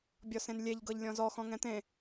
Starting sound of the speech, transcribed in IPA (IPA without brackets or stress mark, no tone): bʲ